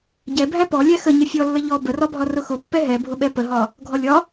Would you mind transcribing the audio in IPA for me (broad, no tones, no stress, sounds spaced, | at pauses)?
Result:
ɟ ɛ bʱ æ p ɔ lʲ æ x ə ɲ ə fʲ ɔ lː ə ʎ ɔ b ə r ɒ bʱ ɒ r ʊ x ʊ pː ɛ ɦ ɛ bʱ ʊ ɓ ɛ p ə ɦ ɒ | ɡʱ ɔ lʲ ɒ